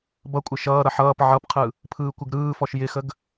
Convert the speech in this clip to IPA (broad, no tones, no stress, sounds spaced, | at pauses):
b ʌ kʷʼ ɪ ʃ ʌː ɾ ʌ ħ ʌː p ʕ ʌ p qʰ ɯ | pʰ ɯː kʷ ɪ ɡ ɾ ɯː f ɔ ʃ j ɪ x ə ɡ